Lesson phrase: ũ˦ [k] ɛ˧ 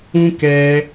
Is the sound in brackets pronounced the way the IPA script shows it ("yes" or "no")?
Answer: yes